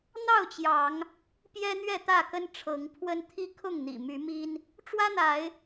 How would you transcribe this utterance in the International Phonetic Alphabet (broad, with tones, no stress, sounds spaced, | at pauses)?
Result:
n̪ ɑ˥˨ ʊ̯ t͡ɕ j ɑ˨˦ ŋ | p j ɛ˦ n̪ ɥ ɛ˥˨ t̪ ä˥˨ k ə˦ n ʈ͡ʂʰ ɤ˨˦ ŋ pʰ w ə˦ n t̪ʰ i˦ kʰ ʊ˥˨ ŋ n̪ ḭ˨˩ m y˨˦ m i˦ n | ʈ͡ʂ w ä˦ n̪ a˨˦ ɪ̯